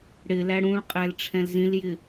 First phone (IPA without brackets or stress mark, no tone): ɽ